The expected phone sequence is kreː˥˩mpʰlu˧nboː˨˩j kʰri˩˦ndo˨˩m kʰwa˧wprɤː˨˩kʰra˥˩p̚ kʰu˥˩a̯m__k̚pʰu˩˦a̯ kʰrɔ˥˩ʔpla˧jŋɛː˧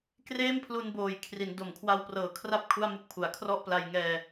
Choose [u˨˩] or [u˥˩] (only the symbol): u˥˩